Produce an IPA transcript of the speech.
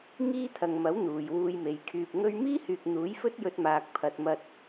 ŋ iː˥ t̪ʰ ɐ˨ ŋ m ɐ˨˥ w n̪ uː˨ j w uː˧ j m e˨˧ j kʰ yː˧ p̚ ŋ ɵ˥ ɥ m iː˥ h yː˨ k̚ n̪ uː˨˥ j f ɵ˥ t̚ j ɵ˧ t̚ m aː˨ k̚ pʰ ɐ˨ t̚ m ɐ˧ t̚

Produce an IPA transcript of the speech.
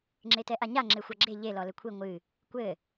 ŋ͡ǁ e t ɛ ʔ a ɲ a ŋ͡ǁ e xʷ a ɡ͡ǁ e ʎ e l ɔ l ɘ kʷʰ i ŋʷ ɨ | kʷ ɘ

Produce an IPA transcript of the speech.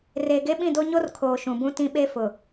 r eː˨ ɡ e˦ ɓ ĩ˦˨ d o˦ ɲ o˦ r kʰ oː˨ ʃ ũ˨ b ũ˦ t ĩ˦ ɓ e˦ f ʊ˨

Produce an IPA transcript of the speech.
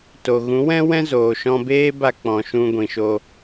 t o˨ ɣ ũ˨˦ w ɛ̃˦ w ɛ̃˦ z oː˨ ʃ ɔ̃˧ b eː˦ b a˧ k͡p ɔ̃˨ ʃ ũ˧ ɡʷ ĩ˨ ʃ o˧

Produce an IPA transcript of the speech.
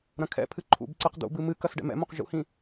ɾ ɐ̃ kʰ ɛ̰ pʰ ɨ ǃʰ ṵ b ǀ ɨ q d̪ ṵ b ɨ m ɨ k ɐ s ɖ ɛ̰ m ɛ̰ m õ q ʒ ṵ h ĩ

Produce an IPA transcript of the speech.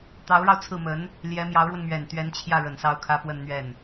t̪ ɑ˧˥ ʊ̯ ɻ ɑ˧ ʊ̯ t͡sʰ ɹ̩˥˩ m ə˧˥ n | l j ɛ˧˥ m j ɑ˧˥ ʊ̯ ɻ w ə˧ n m ɥ ɛ˨˩ n t̪ ɥ ɛ˧˥ n t͡ɕʰ j ä˥˩ ɻ ə˨˩ n s ɑ˥˩ ʊ̯ kʰ ä˥ p w ə˥˧ n n̪ ɥ ɛ˥˩ n

